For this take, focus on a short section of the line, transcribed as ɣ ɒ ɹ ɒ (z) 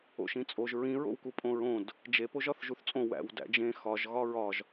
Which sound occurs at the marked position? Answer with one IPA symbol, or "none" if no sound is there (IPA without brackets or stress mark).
ʒ